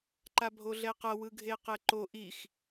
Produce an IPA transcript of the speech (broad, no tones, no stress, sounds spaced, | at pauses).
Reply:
ǃ a bʱ o ɮ ɛ q ʌ w ɯ ɡʱ e q ɛ ǃ o ʔ i x